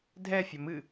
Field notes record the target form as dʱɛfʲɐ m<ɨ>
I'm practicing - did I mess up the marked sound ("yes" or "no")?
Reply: no